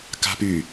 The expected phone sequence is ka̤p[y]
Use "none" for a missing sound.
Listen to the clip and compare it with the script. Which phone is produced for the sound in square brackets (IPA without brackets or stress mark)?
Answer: y